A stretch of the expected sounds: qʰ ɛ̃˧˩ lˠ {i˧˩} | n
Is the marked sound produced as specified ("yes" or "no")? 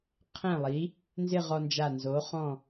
no